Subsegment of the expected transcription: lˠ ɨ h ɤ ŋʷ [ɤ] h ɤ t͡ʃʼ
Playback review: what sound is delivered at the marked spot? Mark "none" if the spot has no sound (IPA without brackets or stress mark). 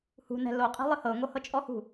ɤ